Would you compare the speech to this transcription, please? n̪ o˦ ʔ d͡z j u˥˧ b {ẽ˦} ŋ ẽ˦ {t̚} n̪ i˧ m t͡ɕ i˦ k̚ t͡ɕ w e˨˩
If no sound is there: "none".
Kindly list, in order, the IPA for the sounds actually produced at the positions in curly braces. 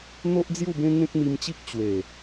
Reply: ẽ˦, k̚

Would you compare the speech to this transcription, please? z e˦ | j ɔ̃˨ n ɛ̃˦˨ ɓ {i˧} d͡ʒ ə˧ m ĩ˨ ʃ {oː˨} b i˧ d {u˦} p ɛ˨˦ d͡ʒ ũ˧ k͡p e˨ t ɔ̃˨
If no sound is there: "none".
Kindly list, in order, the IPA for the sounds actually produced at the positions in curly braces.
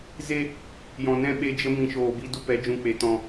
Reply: e˧, oː˨, u˦

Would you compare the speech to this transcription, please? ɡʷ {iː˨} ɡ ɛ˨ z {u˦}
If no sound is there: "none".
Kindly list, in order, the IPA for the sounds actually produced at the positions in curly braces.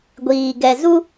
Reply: iː˨, u˦

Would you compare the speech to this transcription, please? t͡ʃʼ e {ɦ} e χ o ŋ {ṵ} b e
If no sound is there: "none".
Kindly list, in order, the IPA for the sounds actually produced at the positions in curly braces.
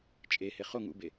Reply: h, ṵ

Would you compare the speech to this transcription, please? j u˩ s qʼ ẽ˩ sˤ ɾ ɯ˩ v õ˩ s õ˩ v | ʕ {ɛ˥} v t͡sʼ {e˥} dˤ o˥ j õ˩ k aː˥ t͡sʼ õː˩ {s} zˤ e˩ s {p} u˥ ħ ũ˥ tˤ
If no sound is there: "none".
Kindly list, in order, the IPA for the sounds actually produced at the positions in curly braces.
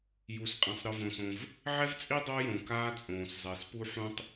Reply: ɛ˥, i˥, s, p

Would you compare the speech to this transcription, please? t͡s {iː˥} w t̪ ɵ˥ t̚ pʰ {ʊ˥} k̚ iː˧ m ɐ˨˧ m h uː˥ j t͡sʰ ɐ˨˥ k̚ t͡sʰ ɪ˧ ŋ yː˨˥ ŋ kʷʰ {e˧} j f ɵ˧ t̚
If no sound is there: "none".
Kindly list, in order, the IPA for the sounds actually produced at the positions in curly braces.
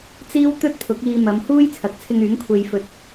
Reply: iː˥, ʊ˨˥, e˧

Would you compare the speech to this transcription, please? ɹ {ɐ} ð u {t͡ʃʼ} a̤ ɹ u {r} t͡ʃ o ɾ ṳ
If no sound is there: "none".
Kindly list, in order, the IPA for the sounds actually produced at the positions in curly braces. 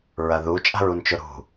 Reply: ɐ, t͡ʃʼ, n

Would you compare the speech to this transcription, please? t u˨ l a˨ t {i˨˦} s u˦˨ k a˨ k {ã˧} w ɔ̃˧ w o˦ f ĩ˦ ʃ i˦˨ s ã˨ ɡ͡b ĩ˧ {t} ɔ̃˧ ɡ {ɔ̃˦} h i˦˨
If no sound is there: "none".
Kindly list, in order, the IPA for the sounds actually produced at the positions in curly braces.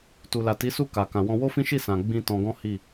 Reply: i˨˦, ã˨, t, ɔ̃˦

